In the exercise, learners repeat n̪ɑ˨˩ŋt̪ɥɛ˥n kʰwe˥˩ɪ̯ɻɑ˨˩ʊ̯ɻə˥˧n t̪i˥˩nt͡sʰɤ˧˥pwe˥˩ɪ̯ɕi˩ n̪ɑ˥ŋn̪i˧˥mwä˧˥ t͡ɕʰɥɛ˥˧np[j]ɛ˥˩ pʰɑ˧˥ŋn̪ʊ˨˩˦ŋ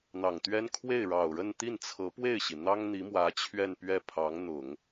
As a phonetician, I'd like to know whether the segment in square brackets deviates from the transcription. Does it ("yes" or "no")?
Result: yes